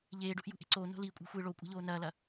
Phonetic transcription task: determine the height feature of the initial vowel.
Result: mid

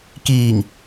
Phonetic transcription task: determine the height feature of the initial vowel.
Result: high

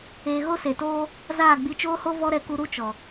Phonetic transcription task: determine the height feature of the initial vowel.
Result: mid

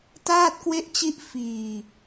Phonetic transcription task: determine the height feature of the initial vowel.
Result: low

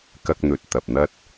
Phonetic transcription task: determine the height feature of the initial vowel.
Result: low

